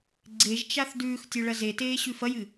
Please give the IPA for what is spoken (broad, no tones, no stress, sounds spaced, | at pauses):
ɡ͡ǀ e ʒ t͡ʃ a θ d ʉː x tʲ o ɭ ɐ z e t eː ɕ ʉ f ɐ j ɨ